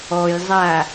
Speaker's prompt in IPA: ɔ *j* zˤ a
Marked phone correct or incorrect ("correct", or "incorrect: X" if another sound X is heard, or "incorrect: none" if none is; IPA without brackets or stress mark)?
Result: correct